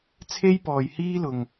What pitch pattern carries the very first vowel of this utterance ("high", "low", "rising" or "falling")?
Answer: high